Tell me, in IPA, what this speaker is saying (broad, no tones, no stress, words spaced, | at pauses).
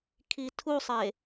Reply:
kʰitʰusˤe